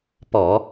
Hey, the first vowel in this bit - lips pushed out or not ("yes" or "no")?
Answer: yes